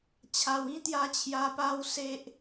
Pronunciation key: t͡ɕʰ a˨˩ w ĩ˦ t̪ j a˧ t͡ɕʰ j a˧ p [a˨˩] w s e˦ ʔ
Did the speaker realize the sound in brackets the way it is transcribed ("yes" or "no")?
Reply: no